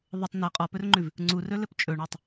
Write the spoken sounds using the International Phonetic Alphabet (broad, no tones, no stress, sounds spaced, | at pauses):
ðˤ ɤ tˤ n ɤ qʼ ɔ p ɵ r ŋ͡ǃ ʉ v | ŋ͡ǀ u r ɵ l ɘ p t͡ʃʼ ɵ ɳ ɤ tˤ